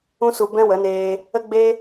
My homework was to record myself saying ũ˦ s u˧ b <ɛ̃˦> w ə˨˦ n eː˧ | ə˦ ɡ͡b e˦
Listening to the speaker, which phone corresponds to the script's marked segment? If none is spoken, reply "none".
ɛ̃˦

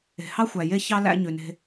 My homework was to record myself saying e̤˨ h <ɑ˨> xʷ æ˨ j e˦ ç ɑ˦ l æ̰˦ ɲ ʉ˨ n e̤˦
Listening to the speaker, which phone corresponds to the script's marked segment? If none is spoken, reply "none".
ɑ˦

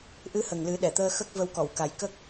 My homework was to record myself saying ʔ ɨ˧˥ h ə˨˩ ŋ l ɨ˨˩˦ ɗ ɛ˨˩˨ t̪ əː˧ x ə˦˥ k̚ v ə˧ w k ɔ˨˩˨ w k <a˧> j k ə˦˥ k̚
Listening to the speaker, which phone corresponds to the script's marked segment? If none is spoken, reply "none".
a˨˩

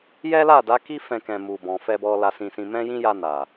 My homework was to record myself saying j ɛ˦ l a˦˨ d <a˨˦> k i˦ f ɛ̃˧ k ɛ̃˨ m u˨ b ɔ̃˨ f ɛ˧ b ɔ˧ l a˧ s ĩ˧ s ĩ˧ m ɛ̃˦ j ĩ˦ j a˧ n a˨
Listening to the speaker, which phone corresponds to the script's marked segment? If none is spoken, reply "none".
a˨˦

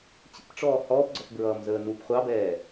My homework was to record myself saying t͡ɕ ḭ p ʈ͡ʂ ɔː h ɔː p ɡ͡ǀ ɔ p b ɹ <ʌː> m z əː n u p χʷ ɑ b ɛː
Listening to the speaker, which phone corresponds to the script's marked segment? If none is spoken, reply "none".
ʌː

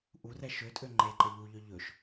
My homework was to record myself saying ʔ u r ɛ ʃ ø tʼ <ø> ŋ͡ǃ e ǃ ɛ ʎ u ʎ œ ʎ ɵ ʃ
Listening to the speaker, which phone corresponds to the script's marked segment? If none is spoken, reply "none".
ø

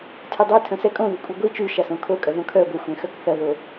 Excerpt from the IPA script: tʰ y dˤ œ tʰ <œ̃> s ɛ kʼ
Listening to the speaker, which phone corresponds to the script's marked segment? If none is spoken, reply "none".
œ̃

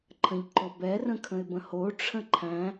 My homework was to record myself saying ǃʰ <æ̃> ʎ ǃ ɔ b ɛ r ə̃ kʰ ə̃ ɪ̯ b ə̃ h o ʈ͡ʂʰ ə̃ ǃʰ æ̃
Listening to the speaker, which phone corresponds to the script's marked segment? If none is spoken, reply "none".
ə̃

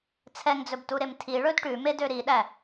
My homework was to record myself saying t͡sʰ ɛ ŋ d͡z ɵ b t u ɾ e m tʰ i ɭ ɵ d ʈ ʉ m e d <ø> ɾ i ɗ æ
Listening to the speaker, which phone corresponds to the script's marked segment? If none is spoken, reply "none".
ø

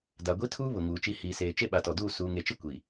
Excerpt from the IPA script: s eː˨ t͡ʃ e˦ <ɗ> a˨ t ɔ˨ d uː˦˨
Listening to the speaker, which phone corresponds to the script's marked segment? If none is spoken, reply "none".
ɓ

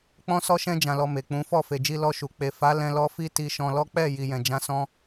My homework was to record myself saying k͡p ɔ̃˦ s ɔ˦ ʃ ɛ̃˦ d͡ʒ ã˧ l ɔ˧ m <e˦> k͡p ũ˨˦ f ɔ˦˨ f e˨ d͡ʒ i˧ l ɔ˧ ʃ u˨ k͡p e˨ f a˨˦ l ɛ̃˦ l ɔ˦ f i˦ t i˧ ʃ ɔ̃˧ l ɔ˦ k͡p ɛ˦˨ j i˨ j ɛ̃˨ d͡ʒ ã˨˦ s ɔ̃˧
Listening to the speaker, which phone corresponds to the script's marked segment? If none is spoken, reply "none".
e˨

